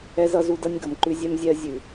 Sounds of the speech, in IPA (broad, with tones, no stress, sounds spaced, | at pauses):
ɛ˦ z ʌ˦ z u˦ d ʌ˦ nʲ ɡ ʌ˨ m ǃ ʉ˦ zʲ ɛ˦ m zʲ ɛ˦ ɐ̯ zʲ ʉ˨